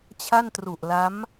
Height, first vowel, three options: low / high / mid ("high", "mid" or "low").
low